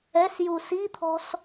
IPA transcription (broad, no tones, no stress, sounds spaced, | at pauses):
ɛ s j u s i t̪ʰ ɔ̤ s